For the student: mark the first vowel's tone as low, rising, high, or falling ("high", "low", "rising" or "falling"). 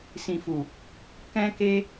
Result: low